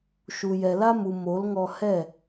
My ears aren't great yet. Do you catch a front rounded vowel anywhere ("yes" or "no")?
no